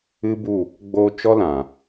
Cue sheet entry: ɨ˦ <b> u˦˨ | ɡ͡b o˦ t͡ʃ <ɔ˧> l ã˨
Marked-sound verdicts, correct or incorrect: correct, incorrect: ɔ˦

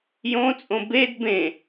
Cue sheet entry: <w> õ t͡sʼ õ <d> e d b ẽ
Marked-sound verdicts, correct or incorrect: incorrect: j, incorrect: b

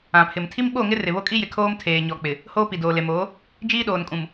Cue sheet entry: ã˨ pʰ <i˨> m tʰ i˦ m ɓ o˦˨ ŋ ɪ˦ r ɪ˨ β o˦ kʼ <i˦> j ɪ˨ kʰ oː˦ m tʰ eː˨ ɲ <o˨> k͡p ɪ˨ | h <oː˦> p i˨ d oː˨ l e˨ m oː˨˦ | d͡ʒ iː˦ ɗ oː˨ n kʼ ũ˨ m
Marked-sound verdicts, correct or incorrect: incorrect: ɪ˨, correct, incorrect: ɔ˨, correct

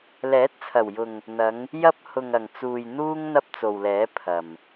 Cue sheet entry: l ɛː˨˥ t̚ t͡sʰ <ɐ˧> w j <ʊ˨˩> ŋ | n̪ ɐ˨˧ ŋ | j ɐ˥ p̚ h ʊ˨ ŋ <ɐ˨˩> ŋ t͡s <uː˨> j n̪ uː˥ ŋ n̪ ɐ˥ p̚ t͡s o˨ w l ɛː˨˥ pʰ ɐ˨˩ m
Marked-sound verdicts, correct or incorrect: incorrect: ɐ˨˩, incorrect: ʊ˨, correct, correct

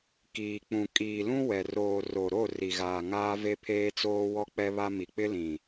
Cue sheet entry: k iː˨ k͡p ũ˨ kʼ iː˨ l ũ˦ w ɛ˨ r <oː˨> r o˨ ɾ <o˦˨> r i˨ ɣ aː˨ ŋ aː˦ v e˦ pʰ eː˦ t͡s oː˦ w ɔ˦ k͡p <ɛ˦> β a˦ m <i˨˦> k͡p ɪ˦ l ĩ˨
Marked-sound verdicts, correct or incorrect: correct, correct, correct, incorrect: i˨

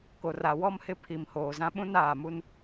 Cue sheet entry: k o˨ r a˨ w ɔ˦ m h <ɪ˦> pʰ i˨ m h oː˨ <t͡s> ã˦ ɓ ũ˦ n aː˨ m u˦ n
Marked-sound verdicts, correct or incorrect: correct, incorrect: z

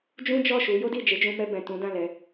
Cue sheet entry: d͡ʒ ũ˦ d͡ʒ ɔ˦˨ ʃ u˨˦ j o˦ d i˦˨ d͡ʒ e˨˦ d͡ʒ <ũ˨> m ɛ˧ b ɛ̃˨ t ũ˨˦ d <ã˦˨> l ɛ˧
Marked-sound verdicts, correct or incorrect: incorrect: ũ˧, correct

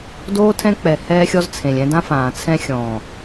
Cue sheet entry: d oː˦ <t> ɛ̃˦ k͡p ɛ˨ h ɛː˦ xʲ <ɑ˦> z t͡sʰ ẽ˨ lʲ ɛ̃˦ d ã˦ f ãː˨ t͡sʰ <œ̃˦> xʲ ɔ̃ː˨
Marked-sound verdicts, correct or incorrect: incorrect: tʰ, incorrect: ɔ˦, incorrect: ɛ̃˦

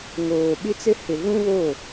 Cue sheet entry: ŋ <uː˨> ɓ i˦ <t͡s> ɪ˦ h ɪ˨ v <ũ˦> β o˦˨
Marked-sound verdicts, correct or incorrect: incorrect: oː˨, correct, correct

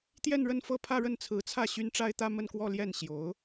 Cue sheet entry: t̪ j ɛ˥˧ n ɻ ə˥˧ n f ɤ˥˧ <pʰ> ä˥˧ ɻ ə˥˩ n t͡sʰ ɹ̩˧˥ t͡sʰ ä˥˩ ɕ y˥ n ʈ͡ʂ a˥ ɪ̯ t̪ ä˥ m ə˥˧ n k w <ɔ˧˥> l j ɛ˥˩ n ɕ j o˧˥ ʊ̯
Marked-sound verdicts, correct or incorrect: correct, incorrect: ɔ˥˧

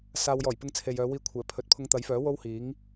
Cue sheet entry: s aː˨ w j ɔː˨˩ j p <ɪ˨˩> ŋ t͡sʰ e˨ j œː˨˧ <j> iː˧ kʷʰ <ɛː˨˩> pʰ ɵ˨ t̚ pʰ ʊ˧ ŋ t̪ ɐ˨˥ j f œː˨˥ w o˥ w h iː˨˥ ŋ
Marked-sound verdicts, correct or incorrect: incorrect: ɪ˧, incorrect: w, correct

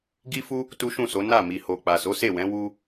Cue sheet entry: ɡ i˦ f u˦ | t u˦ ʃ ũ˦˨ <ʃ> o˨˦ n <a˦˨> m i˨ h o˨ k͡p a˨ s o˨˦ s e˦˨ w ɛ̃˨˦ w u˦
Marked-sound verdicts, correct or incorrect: incorrect: s, correct

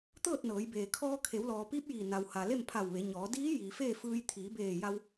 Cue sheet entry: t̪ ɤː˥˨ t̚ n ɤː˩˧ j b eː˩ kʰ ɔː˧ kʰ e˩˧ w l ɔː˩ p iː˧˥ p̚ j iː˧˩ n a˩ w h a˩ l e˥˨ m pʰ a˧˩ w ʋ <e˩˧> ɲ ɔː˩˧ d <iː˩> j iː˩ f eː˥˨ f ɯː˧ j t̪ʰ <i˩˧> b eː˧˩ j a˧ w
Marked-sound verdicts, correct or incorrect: correct, incorrect: iː˧˥, incorrect: iː˩˧

